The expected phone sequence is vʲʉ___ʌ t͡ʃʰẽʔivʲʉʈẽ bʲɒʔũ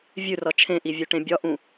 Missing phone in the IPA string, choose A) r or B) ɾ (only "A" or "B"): A